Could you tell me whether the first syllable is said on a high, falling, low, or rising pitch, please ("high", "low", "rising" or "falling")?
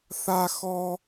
high